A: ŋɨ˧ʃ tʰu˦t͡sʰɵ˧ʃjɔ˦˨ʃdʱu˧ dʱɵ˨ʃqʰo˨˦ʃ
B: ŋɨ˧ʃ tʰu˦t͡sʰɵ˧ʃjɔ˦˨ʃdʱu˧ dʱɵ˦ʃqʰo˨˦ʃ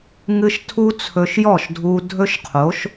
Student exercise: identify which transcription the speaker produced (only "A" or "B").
B